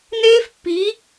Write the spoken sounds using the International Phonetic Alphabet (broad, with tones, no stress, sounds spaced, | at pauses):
n eː˦ f pː i˨˦